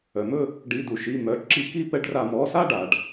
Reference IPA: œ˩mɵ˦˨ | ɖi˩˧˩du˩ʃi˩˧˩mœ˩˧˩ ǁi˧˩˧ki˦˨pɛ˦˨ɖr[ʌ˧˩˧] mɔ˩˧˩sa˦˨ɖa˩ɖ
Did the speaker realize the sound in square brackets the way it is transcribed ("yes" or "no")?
no